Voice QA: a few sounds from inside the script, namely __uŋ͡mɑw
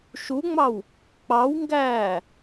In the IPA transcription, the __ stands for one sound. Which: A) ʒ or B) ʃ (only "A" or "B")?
B